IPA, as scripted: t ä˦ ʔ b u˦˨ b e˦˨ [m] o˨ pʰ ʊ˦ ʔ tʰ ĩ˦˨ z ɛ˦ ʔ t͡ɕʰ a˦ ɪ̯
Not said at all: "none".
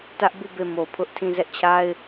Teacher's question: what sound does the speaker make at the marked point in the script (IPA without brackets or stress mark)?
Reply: m